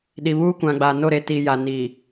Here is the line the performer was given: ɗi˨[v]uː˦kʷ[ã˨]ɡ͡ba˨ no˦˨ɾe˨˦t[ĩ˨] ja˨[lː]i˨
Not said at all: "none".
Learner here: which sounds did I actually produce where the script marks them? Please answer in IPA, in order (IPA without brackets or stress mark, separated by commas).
β, ã˨, i˨, n